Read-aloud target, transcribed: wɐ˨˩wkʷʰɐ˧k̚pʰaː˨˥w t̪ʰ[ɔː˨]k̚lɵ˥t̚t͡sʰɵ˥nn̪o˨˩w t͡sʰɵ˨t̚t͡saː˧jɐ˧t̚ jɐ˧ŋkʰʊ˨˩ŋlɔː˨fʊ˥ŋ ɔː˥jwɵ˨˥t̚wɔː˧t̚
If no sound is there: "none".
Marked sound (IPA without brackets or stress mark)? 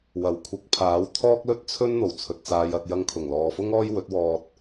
ɔː˥